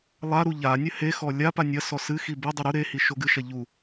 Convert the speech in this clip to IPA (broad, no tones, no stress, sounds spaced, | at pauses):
lˠ a ɾ u ʎ a nʲ ɘ h e x ɔ lʲ a p a nʲ ɐ s ɔ s ɨ x i b e dˤ ɘ ɾ u ɾ e h i ʃ o ɡ ɨ ʃ ɐ ʎ u